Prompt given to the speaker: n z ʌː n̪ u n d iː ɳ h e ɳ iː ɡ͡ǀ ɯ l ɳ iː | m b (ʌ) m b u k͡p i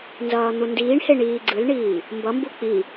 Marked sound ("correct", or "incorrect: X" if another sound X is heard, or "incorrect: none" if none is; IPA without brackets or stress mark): correct